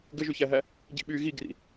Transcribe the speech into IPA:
ɡ ɘ ʒ y ç æ ɦ æ | ɟ ḭ ɓ yː ɣ i ɡ r ḭ

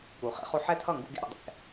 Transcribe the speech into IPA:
k u˩˧ χ ḛ˨˥ χ o˧ ħ ɛ˥˩ tʰ ʌ˥˩ ŋ ɡ ṵ˧ ɡ ḛ˥˩ ɾ ṵ˧ dˤ ɛ̰˩˧

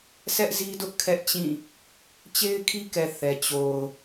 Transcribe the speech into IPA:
s ɛ˦ ʔ z i˦ d ʊ˦ ʔ kʰ ɛ˦ ʔ t͡ɕ ĩ˦˨ | t͡ɕ e˦ ɪ̯ kʰ i˦ k ɛ˨ θ ɛ˨ t͡ɕ o˨ ʊ̯

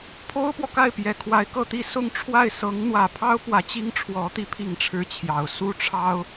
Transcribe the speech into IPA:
pʰ o˥ ʊ̯ p w ɔ˨ k a˥˩ ɪ̯ p j ɛ˨˩ kʰ w a˧˥ ɪ̯ k ɤ˥˧ t̪ i˥˧ s ʊ˥˧ ŋ ʈ͡ʂʰ w a˥˩ ɪ̯ s ɤ˧˥ ŋ n̪ w ä˨˩ pʰ ɑ˥ ʊ̯ p w ä˧˥ t͡ɕ i˥ ŋ ʈ͡ʂʰ w ɔ˧˥ t̪ i˧˥ pʰ i˥˩ ŋ ʈ͡ʂʰ ɻ̩˥ t͡ɕʰ j ɑ˨˩ ʊ̯ s u˥˩ ʈ͡ʂʰ ɑ˥ ʊ̯

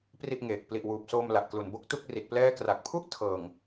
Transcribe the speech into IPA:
p r i˥˩ ʔ ŋ eː˨˩ k̚ p l i˨˩ ʔ w uː˨˩ p̚ s oː˧ m l a˨˩ ʔ k l u˨˩ n b o˦˥ k̚ t u˥˩ k̚ r i˨˩ t̚ p l ɛː˥˩ k r a˨˩ k̚ pʰ u˥˩ ʔ tʰ ɤː˨˩ ŋ

